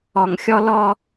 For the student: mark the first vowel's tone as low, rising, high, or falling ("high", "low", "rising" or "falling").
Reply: low